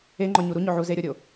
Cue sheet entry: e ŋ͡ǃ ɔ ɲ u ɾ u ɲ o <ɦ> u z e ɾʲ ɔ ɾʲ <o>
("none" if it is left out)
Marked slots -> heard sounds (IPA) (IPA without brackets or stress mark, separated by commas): ʕ, o